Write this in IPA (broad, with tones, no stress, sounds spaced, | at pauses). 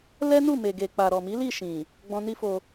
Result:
l ɛ˦ n u˦˨ m e˨ ɡ e˨ k͡p a˨ ɾ ɔ˨ m i˨˦ l i˦˨ ʃ ĩ˨ | ɡ͡b ɔ̃˧ n i˦ f o˧